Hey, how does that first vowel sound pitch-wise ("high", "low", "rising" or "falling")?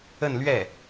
falling